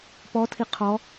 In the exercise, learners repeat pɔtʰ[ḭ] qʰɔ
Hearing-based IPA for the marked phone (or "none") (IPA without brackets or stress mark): i